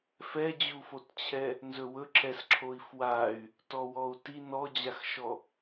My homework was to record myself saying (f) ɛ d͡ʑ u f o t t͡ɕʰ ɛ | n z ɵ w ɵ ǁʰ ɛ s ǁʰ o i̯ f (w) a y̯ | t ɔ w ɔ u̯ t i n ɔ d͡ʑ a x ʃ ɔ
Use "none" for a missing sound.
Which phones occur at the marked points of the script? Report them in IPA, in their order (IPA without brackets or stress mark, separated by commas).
f, w